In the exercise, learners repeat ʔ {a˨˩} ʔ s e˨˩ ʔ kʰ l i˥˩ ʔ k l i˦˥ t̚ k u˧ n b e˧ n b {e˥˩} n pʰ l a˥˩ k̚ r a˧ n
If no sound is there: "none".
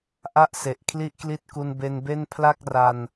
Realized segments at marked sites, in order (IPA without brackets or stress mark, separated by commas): a˦˥, e˥˩